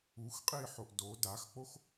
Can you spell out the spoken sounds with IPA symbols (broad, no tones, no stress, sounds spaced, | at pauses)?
u x qʼ iː ħ o ʔ d o d a x k͡p o x